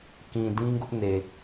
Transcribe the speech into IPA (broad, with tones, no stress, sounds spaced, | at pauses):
k ĩ˨ d ĩ˦ ɡ ʊ˦ ʔ n e˨